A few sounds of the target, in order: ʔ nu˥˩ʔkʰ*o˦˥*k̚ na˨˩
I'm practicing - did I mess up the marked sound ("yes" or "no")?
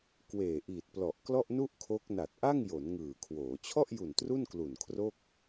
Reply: no